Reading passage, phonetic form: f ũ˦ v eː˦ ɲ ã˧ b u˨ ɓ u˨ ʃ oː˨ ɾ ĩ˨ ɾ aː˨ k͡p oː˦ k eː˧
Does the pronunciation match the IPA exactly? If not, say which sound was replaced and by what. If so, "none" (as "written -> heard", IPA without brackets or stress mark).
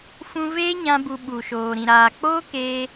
ũ˦ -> ũ˧